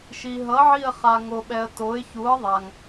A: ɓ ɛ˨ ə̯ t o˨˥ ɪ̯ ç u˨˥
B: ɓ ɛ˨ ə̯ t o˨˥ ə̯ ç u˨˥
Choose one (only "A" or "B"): A